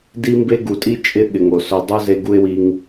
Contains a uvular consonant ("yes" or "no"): no